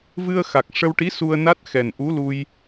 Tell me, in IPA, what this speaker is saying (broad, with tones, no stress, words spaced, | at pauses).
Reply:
vɨ˧ə̯xa˨˩k̚ ʂə˧wʈi˧˥ su˧ə̯ na˦˥t̚xɛ˨˩nʔu˧˥lu˧j